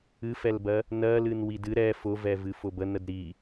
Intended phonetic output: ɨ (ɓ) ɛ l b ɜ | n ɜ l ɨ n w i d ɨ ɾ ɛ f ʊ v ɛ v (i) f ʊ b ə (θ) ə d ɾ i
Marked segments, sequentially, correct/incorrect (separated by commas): incorrect, incorrect, incorrect